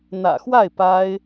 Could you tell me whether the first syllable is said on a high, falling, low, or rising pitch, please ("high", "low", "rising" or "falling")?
low